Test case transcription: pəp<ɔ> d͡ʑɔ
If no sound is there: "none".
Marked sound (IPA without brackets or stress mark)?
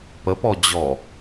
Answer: ɔ